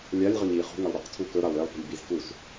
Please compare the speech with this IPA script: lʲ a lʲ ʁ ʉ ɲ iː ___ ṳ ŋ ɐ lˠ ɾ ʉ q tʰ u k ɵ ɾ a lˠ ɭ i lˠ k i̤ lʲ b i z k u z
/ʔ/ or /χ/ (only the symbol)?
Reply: χ